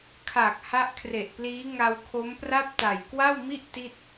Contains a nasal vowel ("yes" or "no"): no